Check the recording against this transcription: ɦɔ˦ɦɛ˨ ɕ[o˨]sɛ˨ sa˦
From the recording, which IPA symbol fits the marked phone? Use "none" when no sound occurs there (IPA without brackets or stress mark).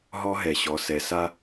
ɔ˨